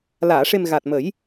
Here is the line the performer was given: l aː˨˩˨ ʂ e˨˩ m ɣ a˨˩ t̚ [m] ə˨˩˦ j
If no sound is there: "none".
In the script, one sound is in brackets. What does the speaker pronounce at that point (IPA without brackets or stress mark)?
m